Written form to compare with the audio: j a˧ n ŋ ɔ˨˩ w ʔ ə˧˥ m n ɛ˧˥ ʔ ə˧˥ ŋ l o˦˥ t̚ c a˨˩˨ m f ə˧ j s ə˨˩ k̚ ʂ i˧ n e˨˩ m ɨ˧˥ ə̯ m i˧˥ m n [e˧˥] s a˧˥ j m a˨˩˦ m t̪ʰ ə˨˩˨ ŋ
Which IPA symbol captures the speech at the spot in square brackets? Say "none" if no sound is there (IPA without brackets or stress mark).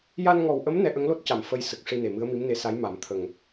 e˧˥